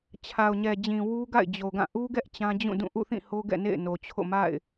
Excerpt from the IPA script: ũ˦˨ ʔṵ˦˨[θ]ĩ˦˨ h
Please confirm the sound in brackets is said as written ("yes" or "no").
yes